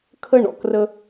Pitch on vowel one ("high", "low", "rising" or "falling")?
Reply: high